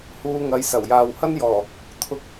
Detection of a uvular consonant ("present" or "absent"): absent